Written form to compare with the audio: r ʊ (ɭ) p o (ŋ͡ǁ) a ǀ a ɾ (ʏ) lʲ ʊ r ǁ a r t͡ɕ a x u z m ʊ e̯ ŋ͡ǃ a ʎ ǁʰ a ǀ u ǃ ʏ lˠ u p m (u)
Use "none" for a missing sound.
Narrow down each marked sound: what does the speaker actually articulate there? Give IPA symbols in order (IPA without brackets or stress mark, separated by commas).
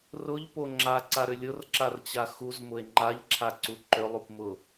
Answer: ʎ, ŋ͡ǁ, ʏ, ʊ